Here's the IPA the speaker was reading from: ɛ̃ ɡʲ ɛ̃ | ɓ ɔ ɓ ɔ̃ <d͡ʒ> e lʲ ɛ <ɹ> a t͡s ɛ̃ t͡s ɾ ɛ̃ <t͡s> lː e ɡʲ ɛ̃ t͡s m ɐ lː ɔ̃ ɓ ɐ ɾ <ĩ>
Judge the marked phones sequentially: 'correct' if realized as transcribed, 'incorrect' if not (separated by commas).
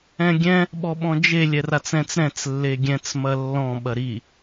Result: correct, incorrect, correct, incorrect